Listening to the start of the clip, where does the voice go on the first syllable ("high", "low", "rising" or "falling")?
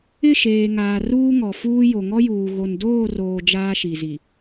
falling